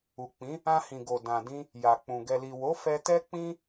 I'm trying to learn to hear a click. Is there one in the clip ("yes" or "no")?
no